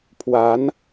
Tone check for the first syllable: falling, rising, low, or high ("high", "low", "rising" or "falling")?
rising